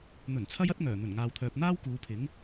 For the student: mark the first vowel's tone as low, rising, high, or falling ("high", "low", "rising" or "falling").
low